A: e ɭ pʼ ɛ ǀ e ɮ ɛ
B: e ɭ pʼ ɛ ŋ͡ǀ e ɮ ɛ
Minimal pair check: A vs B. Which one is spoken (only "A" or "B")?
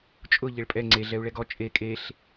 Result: B